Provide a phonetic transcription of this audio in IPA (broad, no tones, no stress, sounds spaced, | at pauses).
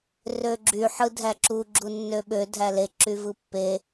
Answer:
r ø ɡ͡ǁ y ħ ɯ dʱ æ ǁ u ɡ͡ǁ u nː ø ɓ ø dʱ æ l e ǁ y v ɯ pː e